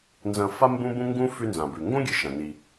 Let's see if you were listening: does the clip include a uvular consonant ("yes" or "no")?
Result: no